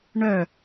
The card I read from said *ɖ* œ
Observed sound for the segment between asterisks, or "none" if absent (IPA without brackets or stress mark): ɳ